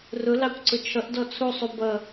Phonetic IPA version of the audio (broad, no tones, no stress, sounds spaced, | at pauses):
r ʊ l ɑ kʷ ǀ ʊ t͡ʃʰ ʌ ʔ d ɔ t͡sʰ u sˤ u b ʌ